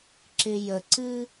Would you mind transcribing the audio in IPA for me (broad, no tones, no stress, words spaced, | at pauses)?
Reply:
ǁɪjəǀɨ